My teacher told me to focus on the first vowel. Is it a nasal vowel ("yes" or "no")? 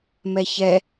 no